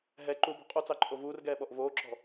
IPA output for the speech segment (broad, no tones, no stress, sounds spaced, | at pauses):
ɦ ɛ ǃ u b ɔ̤ qʼ u t͡s ɑ ǃʼ o v uː r ɡ ɛː ɓ ɔ ʔ v oː ǁ ɔ̤